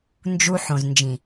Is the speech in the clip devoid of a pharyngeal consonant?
no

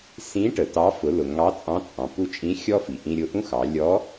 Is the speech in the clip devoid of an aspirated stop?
yes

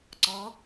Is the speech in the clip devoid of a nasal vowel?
yes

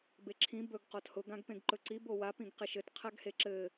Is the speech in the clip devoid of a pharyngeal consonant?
yes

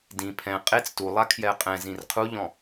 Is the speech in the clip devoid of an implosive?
yes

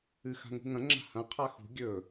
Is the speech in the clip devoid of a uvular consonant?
no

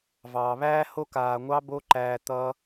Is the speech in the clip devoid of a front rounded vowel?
yes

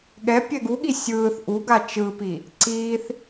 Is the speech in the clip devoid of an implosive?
no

